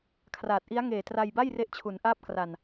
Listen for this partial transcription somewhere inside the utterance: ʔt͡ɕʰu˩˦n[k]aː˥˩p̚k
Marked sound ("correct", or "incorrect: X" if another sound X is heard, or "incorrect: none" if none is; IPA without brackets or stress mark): incorrect: ʔ